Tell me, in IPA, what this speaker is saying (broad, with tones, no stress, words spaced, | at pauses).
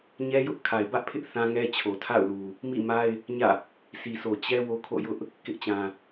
ɲɛ˦jʊ˦ʔ kʰa˨ɪ̯bä˦ʔpʰɪ˦ʔ θã˦ŋɛ˦ t͡ɕʰo˨tʰa̰˦˨ʊ̯lu˨ | mḭ˦˨ma˦ɪ̯ | ɲä̰˦˨ | sʰi˨so˨ t͡ɕɛ˦ wo˦kʰo̰˦˨jʊ˦ʔ | kɪ˦ʔt͡ɕã˨